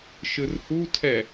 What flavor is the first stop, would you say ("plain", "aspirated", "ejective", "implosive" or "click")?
aspirated